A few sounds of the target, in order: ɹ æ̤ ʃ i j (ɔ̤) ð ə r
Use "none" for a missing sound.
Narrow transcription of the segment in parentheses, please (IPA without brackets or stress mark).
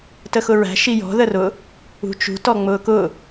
ɔ̤